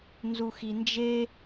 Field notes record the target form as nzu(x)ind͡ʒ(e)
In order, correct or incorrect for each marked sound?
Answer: correct, correct

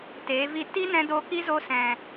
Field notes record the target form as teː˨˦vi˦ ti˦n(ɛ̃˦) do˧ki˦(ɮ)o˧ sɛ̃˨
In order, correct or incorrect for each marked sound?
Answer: incorrect: ɛ̃˧, incorrect: z

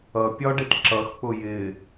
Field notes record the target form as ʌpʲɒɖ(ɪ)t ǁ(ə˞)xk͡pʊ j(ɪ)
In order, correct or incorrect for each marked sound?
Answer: correct, incorrect: ʌ, correct

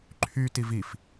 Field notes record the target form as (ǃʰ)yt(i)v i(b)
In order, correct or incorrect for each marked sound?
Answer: correct, correct, incorrect: f

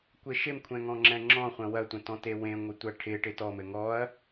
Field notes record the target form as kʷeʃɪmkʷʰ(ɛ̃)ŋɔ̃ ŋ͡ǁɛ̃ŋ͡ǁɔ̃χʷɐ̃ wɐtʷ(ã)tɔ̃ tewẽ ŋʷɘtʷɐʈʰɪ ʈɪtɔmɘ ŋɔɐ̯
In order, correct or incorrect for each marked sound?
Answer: correct, incorrect: ɐ̃

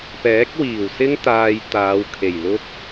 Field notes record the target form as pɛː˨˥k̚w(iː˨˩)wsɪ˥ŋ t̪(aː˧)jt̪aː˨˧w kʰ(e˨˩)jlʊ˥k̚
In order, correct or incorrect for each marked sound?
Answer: correct, correct, correct

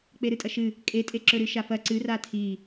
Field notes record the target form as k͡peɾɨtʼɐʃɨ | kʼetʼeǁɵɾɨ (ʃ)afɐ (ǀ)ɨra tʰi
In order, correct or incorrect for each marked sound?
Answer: correct, correct

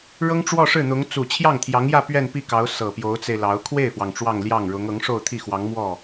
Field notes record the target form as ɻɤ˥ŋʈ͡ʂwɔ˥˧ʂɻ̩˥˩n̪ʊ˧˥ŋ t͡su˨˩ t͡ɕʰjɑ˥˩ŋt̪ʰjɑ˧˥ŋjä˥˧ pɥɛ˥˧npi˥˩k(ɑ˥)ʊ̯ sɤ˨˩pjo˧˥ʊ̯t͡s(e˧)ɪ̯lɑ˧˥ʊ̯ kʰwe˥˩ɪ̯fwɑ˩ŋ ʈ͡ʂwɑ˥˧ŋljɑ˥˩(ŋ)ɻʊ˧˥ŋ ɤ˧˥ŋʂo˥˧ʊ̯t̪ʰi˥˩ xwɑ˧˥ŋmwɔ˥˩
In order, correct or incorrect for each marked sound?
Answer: incorrect: ɑ˧˥, correct, correct

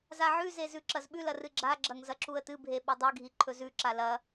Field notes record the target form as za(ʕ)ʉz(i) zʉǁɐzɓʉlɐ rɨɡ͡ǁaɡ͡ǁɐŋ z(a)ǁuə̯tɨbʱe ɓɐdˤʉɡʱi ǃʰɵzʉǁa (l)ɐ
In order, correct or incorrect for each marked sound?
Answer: correct, incorrect: e, incorrect: ɐ, correct

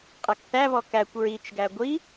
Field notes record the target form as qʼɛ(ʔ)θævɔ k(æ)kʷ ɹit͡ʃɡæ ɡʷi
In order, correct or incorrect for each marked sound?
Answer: incorrect: k, correct

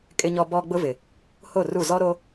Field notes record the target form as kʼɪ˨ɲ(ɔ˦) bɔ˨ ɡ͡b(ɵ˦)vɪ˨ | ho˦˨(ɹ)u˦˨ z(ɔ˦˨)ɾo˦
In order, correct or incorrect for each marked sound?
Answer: incorrect: ɔ˨, incorrect: ʊ˦, incorrect: r, incorrect: ɔ˦

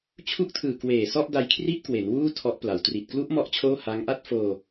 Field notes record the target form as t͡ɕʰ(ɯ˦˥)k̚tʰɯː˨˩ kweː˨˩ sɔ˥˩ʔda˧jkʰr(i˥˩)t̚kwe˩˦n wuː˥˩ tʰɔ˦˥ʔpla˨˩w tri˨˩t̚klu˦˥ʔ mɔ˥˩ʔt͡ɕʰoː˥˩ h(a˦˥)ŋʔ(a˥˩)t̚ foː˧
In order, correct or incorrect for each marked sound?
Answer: incorrect: u˦˥, correct, correct, correct

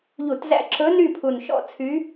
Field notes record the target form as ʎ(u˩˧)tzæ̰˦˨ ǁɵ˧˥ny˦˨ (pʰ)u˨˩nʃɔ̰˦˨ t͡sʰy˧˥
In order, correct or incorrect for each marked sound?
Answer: incorrect: u˧˩˧, correct

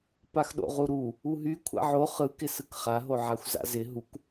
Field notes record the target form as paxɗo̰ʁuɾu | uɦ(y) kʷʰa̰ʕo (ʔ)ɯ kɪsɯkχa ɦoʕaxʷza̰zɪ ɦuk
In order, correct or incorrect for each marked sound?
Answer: correct, incorrect: χ

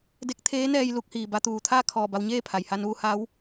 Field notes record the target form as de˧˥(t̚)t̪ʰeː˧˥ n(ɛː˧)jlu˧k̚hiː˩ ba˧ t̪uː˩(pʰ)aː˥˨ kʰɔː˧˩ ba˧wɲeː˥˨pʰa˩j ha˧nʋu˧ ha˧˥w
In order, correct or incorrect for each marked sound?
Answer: incorrect: k̚, correct, incorrect: t̪ʰ

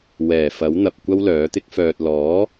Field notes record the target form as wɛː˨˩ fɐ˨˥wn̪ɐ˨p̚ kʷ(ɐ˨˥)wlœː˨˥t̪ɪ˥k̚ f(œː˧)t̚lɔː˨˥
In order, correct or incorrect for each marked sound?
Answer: incorrect: ɐ˥, incorrect: œː˨

